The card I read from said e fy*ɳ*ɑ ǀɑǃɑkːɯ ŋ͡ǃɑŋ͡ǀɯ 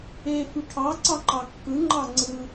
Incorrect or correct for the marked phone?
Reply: incorrect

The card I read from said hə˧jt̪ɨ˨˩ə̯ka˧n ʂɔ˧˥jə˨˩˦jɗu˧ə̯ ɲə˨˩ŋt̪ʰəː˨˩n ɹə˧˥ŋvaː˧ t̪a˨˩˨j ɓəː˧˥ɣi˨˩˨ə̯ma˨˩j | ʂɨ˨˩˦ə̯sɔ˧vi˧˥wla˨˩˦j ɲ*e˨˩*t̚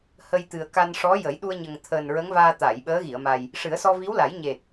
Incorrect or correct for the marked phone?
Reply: correct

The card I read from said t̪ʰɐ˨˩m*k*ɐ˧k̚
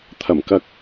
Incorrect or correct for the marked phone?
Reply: correct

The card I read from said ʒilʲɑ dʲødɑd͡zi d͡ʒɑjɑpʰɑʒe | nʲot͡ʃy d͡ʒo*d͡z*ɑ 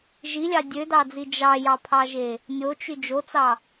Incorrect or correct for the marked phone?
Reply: incorrect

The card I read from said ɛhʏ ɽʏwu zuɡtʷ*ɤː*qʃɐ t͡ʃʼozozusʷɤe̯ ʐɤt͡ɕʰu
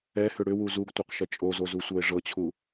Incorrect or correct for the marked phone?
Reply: incorrect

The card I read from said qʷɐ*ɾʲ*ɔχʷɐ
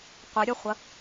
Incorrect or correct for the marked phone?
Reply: correct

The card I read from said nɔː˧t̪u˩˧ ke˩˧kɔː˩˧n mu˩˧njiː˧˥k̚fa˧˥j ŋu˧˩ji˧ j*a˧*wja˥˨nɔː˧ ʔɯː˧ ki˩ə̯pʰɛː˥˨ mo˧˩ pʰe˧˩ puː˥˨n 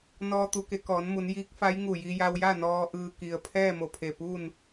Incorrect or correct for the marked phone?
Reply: correct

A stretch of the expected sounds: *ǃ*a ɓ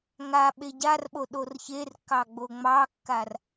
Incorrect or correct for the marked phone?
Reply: incorrect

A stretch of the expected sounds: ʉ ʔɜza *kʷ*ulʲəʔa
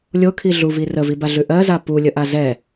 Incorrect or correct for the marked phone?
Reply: incorrect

